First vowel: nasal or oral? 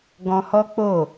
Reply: nasal